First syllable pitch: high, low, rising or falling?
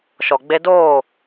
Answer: low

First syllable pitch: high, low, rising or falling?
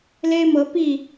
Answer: high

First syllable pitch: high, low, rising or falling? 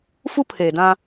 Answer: high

